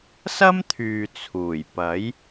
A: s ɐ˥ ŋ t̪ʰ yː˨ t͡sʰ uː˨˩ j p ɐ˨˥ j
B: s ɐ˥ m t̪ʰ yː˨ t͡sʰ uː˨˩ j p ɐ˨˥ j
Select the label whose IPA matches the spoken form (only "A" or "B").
B